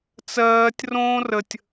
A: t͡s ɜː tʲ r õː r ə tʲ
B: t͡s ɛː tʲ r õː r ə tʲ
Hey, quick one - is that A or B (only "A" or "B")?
A